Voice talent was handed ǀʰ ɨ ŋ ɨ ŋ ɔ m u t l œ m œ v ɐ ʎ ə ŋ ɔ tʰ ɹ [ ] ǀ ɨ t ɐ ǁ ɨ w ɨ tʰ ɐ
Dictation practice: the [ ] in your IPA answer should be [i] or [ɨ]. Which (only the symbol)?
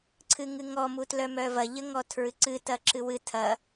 ɨ